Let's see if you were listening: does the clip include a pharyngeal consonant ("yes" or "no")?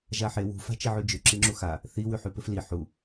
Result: yes